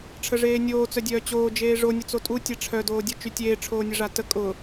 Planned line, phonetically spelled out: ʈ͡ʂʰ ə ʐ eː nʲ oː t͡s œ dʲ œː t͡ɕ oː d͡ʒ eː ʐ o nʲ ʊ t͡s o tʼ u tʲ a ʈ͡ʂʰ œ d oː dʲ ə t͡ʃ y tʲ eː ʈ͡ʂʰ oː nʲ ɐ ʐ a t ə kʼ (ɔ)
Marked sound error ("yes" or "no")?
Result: yes